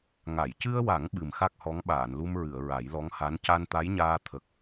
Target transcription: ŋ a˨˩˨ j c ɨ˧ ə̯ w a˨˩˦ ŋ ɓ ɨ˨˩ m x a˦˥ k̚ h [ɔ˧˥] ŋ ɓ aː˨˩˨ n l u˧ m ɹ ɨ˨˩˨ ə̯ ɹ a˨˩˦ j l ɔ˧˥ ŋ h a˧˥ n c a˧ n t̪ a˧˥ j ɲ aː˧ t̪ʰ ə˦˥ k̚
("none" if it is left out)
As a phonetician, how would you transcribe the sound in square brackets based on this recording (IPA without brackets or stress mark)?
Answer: ɔ˧˥